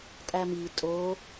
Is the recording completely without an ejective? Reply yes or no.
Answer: no